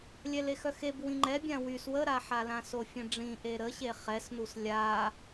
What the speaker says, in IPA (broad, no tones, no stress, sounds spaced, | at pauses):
lʲ ɛ l e x œ x e b w ĩ ŋ͡ǃ ɛ bʲ ã w y s w ə ɾ a ħ a l ã s o fʲ ə̃ ɖ͡ʐ ĩ ʔ e ɾ ə ɕ e χ ɛ s n u s lʲ a